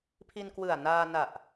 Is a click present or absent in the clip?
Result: absent